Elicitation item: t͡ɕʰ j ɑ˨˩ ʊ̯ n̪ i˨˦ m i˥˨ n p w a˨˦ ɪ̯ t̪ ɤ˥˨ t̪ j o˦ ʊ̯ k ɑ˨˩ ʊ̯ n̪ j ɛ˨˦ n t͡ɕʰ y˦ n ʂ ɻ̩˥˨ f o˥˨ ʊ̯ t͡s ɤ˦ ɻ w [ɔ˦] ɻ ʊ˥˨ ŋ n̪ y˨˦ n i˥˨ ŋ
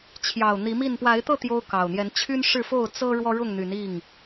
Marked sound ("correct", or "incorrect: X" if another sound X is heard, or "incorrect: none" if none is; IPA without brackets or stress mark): correct